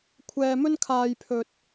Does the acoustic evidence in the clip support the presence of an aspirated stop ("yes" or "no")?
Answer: yes